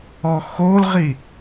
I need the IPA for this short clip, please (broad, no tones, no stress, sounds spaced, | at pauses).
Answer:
ɔ x o l ʁ i